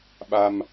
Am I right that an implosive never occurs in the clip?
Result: no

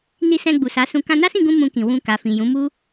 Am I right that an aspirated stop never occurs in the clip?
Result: yes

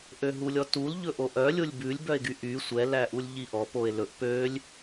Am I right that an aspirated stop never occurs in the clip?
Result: yes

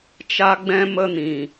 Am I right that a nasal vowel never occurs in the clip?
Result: no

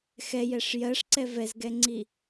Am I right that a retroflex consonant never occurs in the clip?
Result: no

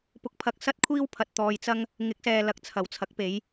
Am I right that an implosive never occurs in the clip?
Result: yes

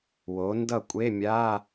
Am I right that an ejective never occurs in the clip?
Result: no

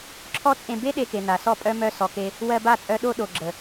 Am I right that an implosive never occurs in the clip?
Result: no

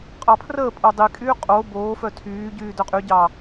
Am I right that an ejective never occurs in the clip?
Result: no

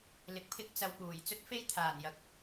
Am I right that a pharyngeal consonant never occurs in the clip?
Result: yes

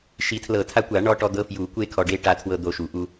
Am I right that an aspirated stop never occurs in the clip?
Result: no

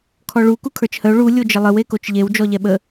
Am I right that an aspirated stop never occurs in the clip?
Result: no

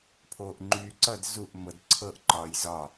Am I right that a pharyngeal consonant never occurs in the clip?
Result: yes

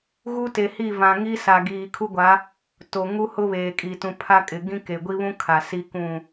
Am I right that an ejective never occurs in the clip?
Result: no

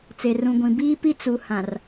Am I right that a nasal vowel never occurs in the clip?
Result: no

